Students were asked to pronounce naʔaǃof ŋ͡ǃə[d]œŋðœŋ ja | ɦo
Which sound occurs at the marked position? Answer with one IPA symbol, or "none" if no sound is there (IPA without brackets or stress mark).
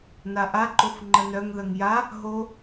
n